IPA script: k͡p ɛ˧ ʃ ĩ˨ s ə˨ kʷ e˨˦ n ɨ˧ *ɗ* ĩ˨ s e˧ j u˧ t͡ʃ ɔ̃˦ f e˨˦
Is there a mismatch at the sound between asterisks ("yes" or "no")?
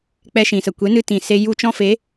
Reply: yes